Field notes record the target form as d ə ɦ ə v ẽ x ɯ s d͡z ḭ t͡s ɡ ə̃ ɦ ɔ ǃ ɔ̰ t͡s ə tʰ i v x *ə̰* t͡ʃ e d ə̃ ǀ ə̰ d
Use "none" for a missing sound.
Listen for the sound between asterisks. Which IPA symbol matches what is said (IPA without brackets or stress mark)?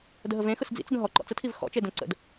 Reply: ɔ̰